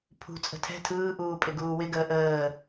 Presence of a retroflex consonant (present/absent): absent